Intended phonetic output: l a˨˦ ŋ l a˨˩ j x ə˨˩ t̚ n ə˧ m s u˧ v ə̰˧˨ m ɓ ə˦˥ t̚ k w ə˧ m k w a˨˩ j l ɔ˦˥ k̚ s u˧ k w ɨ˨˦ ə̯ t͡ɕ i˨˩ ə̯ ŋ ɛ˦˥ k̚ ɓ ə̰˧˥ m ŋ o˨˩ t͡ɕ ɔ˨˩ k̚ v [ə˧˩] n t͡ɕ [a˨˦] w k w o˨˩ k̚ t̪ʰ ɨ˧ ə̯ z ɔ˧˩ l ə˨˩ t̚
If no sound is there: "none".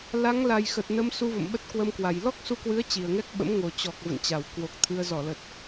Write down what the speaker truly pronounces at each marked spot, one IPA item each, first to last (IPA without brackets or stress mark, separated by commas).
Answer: ə̰˧˨, a˧˩